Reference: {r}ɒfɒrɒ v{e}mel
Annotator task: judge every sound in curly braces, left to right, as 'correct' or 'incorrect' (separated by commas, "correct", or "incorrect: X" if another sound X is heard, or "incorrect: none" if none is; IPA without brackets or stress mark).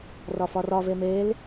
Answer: correct, correct